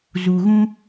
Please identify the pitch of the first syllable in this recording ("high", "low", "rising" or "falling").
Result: low